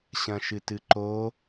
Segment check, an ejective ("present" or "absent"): absent